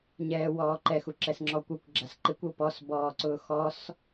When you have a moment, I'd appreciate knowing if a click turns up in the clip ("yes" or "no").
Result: yes